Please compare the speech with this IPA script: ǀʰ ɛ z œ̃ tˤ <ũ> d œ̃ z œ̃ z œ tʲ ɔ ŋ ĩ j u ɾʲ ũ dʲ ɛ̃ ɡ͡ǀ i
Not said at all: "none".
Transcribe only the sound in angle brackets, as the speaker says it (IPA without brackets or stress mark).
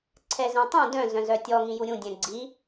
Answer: ũ